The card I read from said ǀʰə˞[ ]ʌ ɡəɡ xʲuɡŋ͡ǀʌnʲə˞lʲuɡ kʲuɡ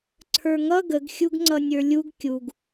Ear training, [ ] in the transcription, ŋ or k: ŋ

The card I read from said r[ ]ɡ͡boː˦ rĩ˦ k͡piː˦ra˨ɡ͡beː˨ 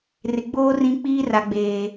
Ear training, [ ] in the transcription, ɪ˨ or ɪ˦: ɪ˨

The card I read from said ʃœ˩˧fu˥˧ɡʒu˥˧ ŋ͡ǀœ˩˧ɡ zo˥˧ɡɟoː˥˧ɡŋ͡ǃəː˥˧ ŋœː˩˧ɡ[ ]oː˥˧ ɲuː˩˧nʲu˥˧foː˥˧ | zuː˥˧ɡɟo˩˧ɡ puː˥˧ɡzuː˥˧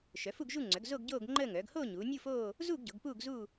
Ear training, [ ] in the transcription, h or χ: h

